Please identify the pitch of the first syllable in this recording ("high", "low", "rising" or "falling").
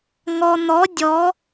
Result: low